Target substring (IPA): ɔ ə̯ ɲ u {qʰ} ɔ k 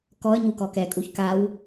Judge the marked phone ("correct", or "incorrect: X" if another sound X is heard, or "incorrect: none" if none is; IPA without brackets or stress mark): incorrect: k